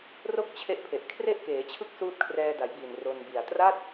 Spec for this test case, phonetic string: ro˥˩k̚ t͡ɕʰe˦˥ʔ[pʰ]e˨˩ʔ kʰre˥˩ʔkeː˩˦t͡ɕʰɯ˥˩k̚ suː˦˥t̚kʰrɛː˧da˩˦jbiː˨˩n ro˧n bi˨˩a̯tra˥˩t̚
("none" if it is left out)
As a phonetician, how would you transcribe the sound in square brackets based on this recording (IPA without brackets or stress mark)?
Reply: pʰ